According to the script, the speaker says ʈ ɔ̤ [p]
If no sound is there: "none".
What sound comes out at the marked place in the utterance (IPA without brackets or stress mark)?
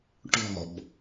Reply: b